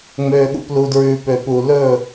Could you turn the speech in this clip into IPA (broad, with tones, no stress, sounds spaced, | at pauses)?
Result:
ŋ͡m øː˨ ɠ ṵ˨ p l u˨ d ɹ ʉː˨ p ø˨ p u˨ l ɵː˦˨